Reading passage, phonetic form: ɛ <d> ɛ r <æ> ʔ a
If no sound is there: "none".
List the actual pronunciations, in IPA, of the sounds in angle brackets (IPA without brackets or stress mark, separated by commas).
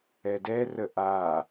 d, ə